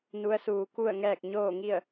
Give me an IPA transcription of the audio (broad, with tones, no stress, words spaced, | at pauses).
nu˧˥ə̯suː˧ku˥˨ə̯ŋɛː˥˨k̚ ɲoː˥˨ŋi˥˨ə̯